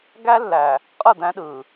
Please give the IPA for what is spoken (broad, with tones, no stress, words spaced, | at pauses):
ɡæ˦lːæ˨ | qʼɯ˦˨d̪æ̃˦ɗɯː˨